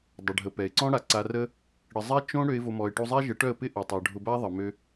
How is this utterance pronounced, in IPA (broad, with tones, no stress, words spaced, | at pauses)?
dˤʊ˨ɖʱə˨pɛ˨ɪ̯ǀɔ̃˦ ɽa˨ǀa˧ rə˦ | ɽə˨zˤɛ˦ t͡ʃõ˦ ɽø˧ɪ̯vo˨mɔ˨ɪ̯ʈu˧ zˤɛ˦ʒə˨˦ʈœ˦˨ə̯pɪ˦ ʔo˨tˤœ˨ ɖʱʊ˧ba˦ðˤə˨ mø˧